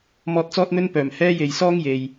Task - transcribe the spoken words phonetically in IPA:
m ɔː˧ t̚ t͡s ɔː˥ t̚ n̪ ɵ˥ n p œː˨˩ m h ɛː˥ j e˨ j s ɔː˥ ŋ j e˨ j

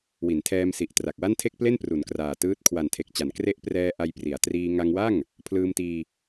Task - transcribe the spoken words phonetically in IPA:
w i˩˦ n tʰ ɛː˧ m s i˨˩ ʔ t r a˨˩ k̚ w a˥˩ n tʰ e˥˩ k̚ p l e˥˩ n p r u˩˦ n k r aː˨˩ t ɯː˦˥ t̚ kʰ w a˨˩ n tʰ e˨˩ k̚ t͡ɕ a˩˦ n k r e˦˥ ʔ p r ɛː˧ ʔ a˧ j p r i˩˦ a̯ t r iː˧ ŋ a˧ ŋ w a˥˩ ŋ | pʰ l ɯː˧ m t iː˧

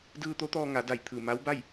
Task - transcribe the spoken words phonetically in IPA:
d ɯː˧ t̪ o˧˥ t̪ ɔː˧ ŋ a˩˧ d a˧˩ j t̪ʰ ɯː˧˩ m a˧˥ w b a˥˨ j

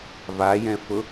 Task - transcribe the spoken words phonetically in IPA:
v a j ɛ̃ f ʊ

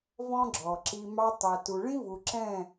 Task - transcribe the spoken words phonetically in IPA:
v ɔ̃˦ ɡ͡ǁ ɔ˨ ǁ i˧ m ɑ˧ tˤ æ˨ t u˨ ɭ ĩ˦ v u˨ ǁ ɛ̃˦˨

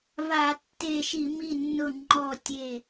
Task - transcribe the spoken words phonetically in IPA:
v a˧˩˧ tː e˧˩ ʃ i˧˩˧ m i˧˩ nː ʊ˧˩ ŋ͡ǃ ɔ˧˩ tʲ e˧˩

